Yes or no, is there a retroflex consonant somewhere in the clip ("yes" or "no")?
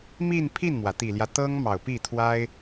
no